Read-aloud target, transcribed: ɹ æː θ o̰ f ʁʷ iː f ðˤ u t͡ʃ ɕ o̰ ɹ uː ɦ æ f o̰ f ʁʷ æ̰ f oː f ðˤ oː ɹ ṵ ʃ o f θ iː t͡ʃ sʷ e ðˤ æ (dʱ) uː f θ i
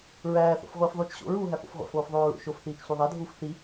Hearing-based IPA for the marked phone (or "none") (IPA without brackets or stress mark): dʱ